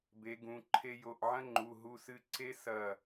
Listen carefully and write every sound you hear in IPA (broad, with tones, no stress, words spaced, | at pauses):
be˨˦ɡũ˩˧˩ǃʰe˦ jo˩˧˩ʔʕɐ̃˦ŋ͡ǃu˩˧˩ ɦu˦sɨ˦ ǀe˦sɐ˧˩